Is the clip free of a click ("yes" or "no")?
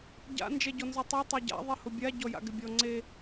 no